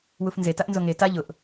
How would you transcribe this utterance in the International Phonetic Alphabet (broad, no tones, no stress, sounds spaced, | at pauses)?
w u f n z e t a ʔ n z o ŋ e t a ʎ ʊ ʔ